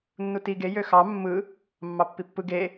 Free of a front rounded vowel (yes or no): no